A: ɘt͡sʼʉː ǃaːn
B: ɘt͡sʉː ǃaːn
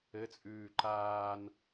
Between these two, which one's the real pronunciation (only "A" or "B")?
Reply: A